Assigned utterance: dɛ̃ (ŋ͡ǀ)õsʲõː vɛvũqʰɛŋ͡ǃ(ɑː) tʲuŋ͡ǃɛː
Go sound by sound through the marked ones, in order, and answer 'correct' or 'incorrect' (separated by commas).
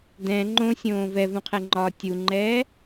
incorrect, incorrect